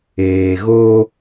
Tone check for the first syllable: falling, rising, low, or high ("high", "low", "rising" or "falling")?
low